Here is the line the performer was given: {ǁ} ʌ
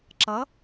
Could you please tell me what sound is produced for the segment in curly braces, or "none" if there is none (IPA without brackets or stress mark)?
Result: ǁ